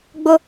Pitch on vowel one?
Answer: high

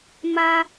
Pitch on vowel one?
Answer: high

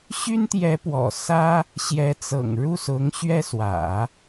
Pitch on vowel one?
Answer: high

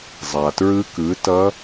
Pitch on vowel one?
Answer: low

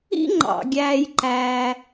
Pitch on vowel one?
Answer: high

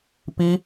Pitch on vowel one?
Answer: high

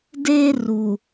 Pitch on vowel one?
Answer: high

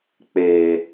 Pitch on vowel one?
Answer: low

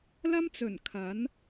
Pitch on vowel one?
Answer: high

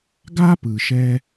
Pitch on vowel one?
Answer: high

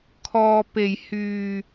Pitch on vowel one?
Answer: low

